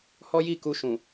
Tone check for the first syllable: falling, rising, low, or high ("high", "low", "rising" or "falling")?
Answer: high